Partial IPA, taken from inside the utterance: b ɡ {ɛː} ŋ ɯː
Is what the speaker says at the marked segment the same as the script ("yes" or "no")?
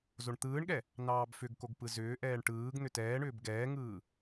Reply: yes